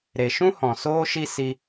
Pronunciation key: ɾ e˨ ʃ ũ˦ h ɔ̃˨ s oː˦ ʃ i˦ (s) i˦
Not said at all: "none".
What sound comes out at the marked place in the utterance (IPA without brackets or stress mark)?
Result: s